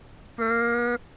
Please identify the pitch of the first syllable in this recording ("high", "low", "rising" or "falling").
high